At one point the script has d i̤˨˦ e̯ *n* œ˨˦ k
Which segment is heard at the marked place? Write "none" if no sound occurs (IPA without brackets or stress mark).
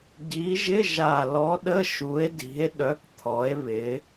ɗ